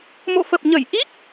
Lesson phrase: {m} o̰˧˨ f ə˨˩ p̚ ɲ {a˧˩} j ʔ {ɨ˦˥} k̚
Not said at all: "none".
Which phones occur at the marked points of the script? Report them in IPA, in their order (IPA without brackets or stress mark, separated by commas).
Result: m, ə˧˩, i˦˥